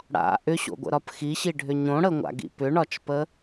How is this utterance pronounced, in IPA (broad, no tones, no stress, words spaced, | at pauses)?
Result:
ɽa̰ ʔʏɕo̰ɡʷə̰ɾɒp xiɕiɖʱʏ ɲõɽəŋʷa̰ɡḭ pʏɳɒt͡ʃpə